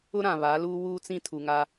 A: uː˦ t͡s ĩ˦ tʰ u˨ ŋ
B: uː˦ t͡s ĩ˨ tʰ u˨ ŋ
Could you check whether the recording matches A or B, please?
A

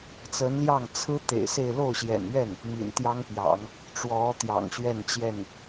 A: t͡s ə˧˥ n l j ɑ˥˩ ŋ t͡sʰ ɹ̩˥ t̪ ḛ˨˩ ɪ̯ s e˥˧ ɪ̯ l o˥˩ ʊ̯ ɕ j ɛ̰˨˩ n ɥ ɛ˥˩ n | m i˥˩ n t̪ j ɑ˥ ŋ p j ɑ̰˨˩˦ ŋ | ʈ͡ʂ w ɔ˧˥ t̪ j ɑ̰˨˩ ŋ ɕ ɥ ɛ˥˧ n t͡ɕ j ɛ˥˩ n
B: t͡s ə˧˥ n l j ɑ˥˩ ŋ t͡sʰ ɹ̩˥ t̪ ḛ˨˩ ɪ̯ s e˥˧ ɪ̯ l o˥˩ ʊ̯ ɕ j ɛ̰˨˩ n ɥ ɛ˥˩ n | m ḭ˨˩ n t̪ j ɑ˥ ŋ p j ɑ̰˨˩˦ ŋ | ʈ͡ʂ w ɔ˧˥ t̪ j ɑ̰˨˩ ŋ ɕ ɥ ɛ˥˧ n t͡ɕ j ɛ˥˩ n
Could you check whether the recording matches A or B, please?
B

